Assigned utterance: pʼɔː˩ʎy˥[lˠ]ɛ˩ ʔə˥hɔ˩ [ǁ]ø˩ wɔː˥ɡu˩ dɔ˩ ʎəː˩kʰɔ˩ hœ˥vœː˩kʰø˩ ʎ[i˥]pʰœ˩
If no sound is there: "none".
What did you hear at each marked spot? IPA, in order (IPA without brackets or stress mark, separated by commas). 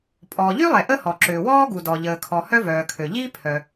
lˠ, ǁ, i˥